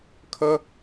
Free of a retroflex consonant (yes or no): yes